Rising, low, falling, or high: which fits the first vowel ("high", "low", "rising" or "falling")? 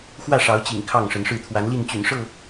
falling